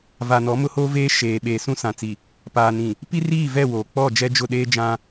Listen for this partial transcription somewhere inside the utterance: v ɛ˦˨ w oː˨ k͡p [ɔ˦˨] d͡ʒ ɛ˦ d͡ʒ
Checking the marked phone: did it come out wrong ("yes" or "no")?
no